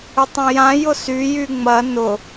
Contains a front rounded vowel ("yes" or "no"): yes